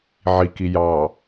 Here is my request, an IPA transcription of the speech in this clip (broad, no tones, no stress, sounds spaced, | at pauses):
ʕ i k i j ɑ